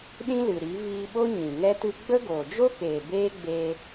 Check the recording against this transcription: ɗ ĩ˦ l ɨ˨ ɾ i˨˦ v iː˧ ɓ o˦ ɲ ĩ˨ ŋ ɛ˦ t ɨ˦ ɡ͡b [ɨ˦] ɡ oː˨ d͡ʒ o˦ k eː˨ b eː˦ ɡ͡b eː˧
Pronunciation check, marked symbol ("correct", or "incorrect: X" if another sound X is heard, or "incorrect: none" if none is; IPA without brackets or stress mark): incorrect: ə˦